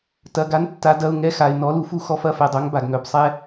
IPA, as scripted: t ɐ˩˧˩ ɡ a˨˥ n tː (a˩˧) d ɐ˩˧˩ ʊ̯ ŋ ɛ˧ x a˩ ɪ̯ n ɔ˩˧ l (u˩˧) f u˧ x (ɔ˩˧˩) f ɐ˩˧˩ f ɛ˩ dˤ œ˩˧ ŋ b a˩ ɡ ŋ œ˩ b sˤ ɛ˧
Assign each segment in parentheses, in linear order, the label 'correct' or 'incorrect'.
correct, correct, incorrect: ɔ˧

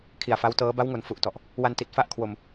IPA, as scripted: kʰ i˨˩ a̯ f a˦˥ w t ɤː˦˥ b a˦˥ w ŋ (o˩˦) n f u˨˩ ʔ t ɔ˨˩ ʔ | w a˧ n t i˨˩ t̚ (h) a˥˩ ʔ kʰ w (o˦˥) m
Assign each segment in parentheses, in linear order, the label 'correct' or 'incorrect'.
correct, incorrect: f, incorrect: o˧

